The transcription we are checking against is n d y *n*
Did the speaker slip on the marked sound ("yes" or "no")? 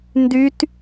yes